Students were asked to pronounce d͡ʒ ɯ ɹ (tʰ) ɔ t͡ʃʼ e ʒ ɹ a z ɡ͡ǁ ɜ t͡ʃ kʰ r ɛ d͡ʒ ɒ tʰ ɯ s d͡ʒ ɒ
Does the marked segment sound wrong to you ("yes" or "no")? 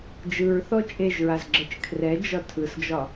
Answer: yes